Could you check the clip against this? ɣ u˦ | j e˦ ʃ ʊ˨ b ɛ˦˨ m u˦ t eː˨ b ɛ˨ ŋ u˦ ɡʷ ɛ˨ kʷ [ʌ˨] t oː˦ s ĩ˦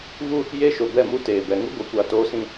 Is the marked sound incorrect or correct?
incorrect